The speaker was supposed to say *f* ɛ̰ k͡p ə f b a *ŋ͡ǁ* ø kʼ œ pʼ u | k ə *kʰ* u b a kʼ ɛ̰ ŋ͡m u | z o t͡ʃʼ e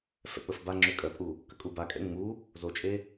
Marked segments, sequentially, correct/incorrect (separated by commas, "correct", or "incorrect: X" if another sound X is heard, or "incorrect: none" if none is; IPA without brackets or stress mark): correct, correct, incorrect: kʼ